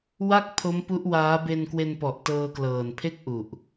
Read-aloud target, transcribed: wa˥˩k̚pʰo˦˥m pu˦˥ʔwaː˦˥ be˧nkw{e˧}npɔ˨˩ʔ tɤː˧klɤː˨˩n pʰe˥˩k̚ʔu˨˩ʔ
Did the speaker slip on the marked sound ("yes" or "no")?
no